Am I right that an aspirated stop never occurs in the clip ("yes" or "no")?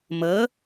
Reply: yes